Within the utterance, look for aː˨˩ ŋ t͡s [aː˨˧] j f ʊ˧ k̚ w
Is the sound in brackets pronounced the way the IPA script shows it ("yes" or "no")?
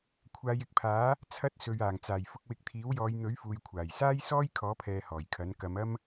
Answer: no